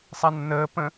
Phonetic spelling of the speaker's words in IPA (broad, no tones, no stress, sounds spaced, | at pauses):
sˤ a nː əː p ə̃